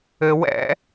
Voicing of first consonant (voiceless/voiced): voiced